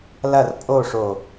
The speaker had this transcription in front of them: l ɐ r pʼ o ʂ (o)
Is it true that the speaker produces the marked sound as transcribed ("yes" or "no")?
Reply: yes